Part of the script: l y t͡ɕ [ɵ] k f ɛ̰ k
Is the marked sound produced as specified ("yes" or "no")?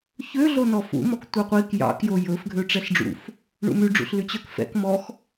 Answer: no